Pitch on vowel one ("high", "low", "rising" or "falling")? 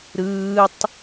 high